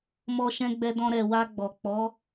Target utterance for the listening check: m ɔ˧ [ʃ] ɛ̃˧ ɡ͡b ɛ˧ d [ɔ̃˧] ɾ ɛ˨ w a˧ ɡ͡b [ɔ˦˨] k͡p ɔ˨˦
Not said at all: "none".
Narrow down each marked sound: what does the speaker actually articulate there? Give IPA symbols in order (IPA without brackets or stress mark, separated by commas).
ʃ, ɔ̃˧, ɔ˨